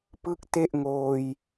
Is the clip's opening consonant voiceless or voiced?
voiceless